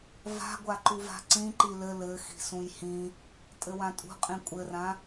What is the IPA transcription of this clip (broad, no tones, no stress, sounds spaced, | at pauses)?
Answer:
v a̤ ɡʷ a ǃ u v a̤ ǀ ĩ ǃ i l ɘ l ɘ x i̤ s ũ j h ĩ | tʼ ɘ w ã tʼ ṳ qʼ ĩ kʷʼ ɘ r ã